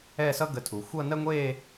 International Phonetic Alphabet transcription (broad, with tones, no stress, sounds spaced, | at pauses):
ɛ˥˧ s ʌ˥ ɡ ə˧˩ tʰ u˩˧ xʷ ʌ˥˧ n ɜ˥ ŋʷ e˥˧